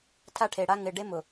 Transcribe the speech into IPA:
tʰ a˦ ʈʰ e˨ ɽ a˦ ŋ ɪ˨ ɖ e˦ m ʊ˨

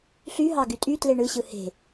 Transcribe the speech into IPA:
ɬ y ɦ ɑ ɡ y tʼ y t l e ɳ ɯ ɕ ɯ h e̤

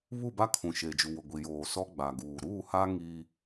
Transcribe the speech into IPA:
β u˦˨ b a˦ kʰ ũ˨ ʃ eː˨ d͡ʒ u˨ w ʊ˨ ɡʷ i˨ j oː˨ s ɔ˦ ɡ͡b a˨ ɡ uː˨ ɾ uː˦˨ h a˦ ŋ iː˦

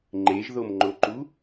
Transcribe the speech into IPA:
ŋ͡ǃ e ʒ ð o m ŋ͡ǃ o ǃ u

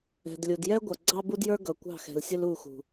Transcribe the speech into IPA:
ɛ̤˨ d lʲ u˨ d j ɛ˦ ɡʷ ʌ˨ ɡ͡ǀ ɑ˦ b u˦ d j ə˞˦ ɡ ʌ˨ kʷ ɑ̤˦˨ x ɛ̤˨ l sʲ ʊ˦ l u˦˨ x ṳ˨

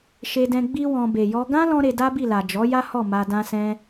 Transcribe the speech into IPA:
ʃ e˧ d ɛ̃˧ ɡ͡b i˦ w ɔ̃˧ b e˨ j ɔ˧ ɡ ã˦ l ɔ̃˦ ɾ e˧ d a˦ b i˦˨ l a˨ d͡ʒ ɔ˨˦ j a˦ h ɔ˦˨ m a˧ d ã˧ s ɛ̃˧

